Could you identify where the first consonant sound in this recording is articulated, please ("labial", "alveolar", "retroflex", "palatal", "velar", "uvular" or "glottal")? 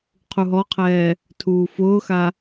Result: uvular